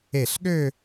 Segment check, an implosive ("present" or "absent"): present